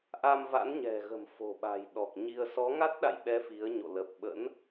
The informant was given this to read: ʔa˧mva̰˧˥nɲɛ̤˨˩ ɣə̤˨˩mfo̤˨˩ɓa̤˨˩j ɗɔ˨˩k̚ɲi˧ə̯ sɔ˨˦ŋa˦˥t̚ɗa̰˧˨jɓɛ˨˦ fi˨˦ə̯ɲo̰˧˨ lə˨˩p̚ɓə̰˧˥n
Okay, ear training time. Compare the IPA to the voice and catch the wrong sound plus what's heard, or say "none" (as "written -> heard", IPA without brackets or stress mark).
none